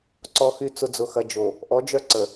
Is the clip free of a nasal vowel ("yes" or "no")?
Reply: yes